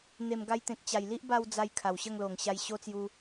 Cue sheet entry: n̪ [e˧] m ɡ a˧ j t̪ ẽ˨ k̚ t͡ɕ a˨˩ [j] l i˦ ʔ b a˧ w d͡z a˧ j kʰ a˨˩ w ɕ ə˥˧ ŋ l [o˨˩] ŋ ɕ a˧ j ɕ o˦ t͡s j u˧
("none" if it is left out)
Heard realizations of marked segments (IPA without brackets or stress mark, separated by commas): e˨˩, j, o˨˩